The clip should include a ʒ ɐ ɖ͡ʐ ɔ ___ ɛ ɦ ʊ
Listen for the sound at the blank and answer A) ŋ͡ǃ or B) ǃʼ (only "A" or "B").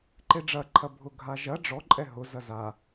B